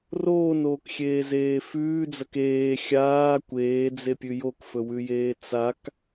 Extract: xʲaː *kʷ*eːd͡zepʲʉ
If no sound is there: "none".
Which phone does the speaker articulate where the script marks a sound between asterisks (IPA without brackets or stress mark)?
kʷ